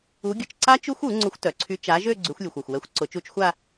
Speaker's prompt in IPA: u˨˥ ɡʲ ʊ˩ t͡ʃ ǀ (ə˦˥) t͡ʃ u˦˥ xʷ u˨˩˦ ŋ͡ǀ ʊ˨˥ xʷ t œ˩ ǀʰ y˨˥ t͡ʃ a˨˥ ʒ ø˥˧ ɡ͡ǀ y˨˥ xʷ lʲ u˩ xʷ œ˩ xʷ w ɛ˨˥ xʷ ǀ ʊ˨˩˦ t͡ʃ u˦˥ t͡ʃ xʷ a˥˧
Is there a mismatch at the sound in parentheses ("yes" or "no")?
yes